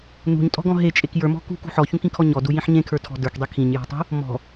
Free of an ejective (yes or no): no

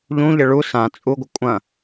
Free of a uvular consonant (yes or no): yes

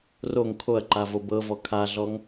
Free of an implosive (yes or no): yes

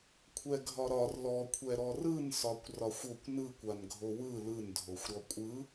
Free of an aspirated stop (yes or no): no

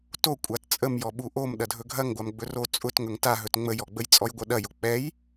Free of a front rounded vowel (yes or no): yes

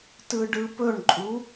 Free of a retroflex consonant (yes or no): no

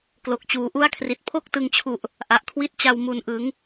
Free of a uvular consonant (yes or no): yes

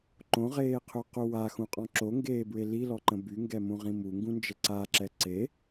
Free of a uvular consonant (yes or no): no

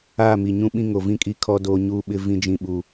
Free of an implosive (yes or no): no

